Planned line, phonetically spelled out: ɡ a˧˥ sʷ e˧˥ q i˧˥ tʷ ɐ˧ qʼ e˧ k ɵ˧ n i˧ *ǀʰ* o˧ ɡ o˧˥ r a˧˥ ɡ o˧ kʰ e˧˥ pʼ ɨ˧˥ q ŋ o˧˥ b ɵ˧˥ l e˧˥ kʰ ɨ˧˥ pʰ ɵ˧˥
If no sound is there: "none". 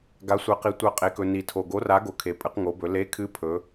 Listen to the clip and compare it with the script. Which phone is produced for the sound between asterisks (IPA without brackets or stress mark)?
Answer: tʰ